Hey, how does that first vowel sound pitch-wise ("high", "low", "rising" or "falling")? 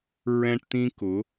high